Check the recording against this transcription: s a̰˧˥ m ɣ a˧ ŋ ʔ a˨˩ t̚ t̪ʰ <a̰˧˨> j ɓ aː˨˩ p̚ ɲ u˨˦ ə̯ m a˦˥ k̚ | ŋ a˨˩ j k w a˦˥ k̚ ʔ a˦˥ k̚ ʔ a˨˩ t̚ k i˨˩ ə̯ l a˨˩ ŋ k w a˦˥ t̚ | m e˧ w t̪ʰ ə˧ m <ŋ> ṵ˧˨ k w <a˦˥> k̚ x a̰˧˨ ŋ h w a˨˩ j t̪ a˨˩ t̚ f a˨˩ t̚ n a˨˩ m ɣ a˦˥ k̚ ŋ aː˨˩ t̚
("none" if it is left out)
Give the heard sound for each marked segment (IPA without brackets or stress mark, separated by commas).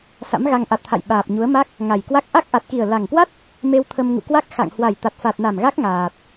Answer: a̰˧˨, ŋ, a˦˥